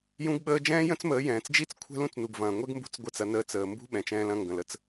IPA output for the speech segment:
j ũ˧ ɡ ɓ əː˧ d͡ʒ ɛ̃ː˦ j ə̃˦ t͡s m əː˨˦ j ɛ̃ː˨ t͡s d͡ʒ i˦ t͡s kʷʰ ɛ̤˦ l ũ˦ t͡s n u˨ ɡ v ɐ̃ː˨ ŋʷ ɛ˦ ɡ m b ṳ˦ t͡s ɡʷ ɛ˦˨ t͡s ɐ˧ n əː˧ t͡s əː˨ m b ṳ˦ ɓ ɛ̃˨ t͡ʃ ɛ̃ː˧ l ɐ̃˧ ŋ ɡ ə̃˨ l ə˧ t͡s

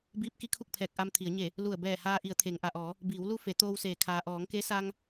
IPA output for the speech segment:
b iː˧˥ p̚ k i˧˥ kʰ u˥˨ k̚ pʰ ɛː˧˩ k̚ ʔ a˧ m t̪ʰ i˩˧ ə̯ ɲ e˧˩ | l u˧˩ ə̯ b ɛː˧˩ h aː˧ ʔ i˩˧ ə̯ t̪ʰ e˩˧ ŋ ʔ a˩ ʔ ɔː˩˧ | b iː˩˧ w l u˧˥ f e˩˧ t̪ oː˧ w s eː˩˧ kʰ aː˩ ʔ ɔː˩˧ ŋ k e˧˥ s a˧ ŋ

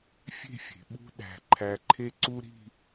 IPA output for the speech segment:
fʲ e̤˥˧ fʲ e̤˩˧ ɓ ṳ˥ ɗ æ̤˧˩ ǃʰ æ˧ ǃʰ e˥ ǀ u˥ ɾ i̤˥˧

